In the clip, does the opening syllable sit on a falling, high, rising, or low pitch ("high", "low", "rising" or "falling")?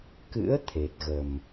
rising